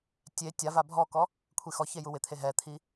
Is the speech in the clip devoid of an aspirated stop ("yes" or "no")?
no